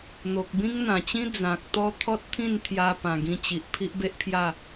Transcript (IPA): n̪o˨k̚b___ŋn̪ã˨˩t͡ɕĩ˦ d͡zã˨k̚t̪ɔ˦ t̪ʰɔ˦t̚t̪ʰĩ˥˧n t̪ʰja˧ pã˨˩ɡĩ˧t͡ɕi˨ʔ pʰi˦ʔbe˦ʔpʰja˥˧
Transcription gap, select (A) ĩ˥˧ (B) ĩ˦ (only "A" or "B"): B